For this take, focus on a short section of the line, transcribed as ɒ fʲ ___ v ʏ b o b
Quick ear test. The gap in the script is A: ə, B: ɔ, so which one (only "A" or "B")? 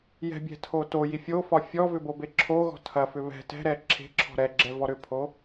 B